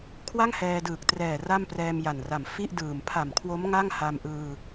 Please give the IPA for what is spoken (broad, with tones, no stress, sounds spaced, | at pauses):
kʰ w a˥˩ ŋ h ɛː˧ d ɯː˨˩ k̚ t r ɛː˨˩ r a˥˩ m p r ɛː˧ m j a˨˩ n r a˨˩ m f i˥˩ ʔ d ɯː˨˩ m pʰ a˨˩ m kʰ w o˦˥ m ŋ a˥˩ ŋ h a˧ m ʔ ɯː˧